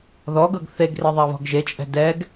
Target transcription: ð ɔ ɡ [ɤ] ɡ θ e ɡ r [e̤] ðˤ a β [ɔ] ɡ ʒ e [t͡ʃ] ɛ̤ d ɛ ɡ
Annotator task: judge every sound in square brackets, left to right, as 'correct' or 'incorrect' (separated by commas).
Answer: correct, incorrect, incorrect, incorrect